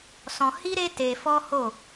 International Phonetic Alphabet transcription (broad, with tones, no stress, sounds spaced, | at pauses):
s ɔ̃˧ h i˦ ɾ e˦ t e˧ f ɔ˦ h o˦˨